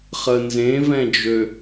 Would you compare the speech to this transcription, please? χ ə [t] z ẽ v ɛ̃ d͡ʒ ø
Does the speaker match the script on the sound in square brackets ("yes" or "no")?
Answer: no